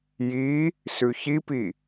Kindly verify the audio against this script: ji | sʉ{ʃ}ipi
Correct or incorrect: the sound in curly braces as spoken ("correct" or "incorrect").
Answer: incorrect